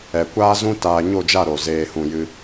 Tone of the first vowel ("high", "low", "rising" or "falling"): low